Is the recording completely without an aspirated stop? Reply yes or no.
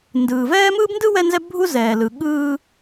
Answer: yes